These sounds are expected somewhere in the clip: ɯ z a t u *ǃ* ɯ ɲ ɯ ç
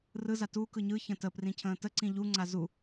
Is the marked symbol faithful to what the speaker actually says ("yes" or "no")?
no